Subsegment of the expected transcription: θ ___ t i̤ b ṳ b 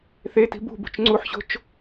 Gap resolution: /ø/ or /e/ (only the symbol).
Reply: e